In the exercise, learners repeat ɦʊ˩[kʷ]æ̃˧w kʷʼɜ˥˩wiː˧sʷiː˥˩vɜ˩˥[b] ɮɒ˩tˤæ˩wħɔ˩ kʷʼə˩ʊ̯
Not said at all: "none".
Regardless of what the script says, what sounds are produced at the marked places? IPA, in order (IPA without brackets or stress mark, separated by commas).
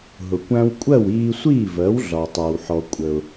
kʷ, w